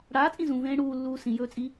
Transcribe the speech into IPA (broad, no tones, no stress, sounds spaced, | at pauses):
ɽ aː t͡sʼ ĩ z ũ v ẽː ɽ uː lː uː s ĩ j ɵː t͡sʼ i